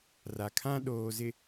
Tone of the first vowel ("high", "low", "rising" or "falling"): low